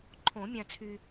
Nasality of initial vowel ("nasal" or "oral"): nasal